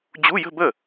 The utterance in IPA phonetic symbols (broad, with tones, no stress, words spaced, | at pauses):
d͡ʑu˧˥˧jə̤˥˧bə˥˩